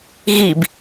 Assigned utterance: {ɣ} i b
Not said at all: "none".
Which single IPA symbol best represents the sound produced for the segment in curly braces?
ɣ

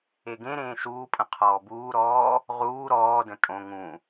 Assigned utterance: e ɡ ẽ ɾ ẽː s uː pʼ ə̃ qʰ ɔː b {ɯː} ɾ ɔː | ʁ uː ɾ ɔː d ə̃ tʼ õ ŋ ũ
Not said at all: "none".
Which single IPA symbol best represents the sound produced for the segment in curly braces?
uː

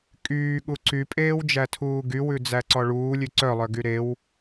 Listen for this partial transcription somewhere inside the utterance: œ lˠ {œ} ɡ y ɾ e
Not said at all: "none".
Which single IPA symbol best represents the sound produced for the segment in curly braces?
œ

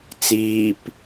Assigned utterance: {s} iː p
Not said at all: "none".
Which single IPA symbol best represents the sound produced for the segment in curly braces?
t͡s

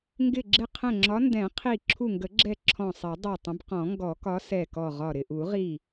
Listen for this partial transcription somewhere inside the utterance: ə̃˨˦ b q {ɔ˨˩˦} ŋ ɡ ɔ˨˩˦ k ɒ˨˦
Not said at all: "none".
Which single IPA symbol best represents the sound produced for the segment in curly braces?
ɔ̃˨˩˦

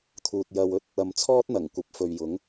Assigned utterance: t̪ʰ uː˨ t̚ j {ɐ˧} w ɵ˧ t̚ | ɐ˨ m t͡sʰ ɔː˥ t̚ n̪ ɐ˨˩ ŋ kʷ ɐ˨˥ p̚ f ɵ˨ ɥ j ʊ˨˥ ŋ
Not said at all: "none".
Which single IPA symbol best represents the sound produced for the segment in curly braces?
ɐ˧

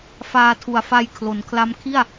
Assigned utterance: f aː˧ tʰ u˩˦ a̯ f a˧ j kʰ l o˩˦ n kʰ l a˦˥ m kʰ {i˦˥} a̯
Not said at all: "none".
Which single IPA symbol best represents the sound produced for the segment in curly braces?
i˥˩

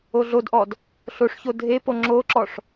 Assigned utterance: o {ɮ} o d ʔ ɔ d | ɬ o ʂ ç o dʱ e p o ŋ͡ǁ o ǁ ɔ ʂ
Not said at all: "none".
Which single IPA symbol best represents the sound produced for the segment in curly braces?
ɮ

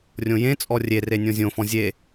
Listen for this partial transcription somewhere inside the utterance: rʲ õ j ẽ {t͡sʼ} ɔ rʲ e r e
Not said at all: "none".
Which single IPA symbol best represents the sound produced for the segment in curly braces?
t͡sʼ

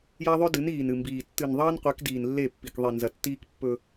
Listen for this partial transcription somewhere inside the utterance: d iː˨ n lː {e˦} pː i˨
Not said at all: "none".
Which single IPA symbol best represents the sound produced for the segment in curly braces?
e˦˨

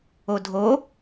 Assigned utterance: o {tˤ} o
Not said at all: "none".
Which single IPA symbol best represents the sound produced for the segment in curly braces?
dʱ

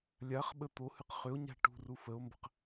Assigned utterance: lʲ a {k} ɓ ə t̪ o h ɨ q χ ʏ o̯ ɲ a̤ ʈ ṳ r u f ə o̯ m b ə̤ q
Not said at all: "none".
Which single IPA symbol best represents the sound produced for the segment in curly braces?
χ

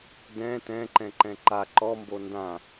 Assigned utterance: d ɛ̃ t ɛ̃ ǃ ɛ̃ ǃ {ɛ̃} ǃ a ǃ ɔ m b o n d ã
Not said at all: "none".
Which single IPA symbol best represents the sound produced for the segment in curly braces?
ɛ̃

